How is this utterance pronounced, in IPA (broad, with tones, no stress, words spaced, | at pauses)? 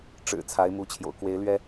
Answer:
ʈ͡ʂɻ̩˨˩ t͡sʰa˧˥ɪ̯mu˧˥t͡ɕʰjo̰˨˩ʊ̯ kwe˧˥ɪ̯lɥɛ˥